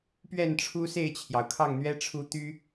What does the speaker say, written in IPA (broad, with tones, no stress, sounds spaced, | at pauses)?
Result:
p ɥ ɛ˥˨ n ʈ͡ʂʰ u˦ s e˥˨ ɪ̯ t͡ɕʰ j ɑ˩ ʊ̯ kʰ ɑ˥˨ ŋ n̪ ɥ ɛ˦ ʈ͡ʂʰ u˦ t̪ y˦